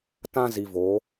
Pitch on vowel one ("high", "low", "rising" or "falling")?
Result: high